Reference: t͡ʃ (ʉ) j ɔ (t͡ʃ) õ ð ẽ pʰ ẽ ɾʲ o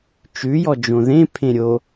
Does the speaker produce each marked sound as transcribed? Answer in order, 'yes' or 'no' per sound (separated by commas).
yes, no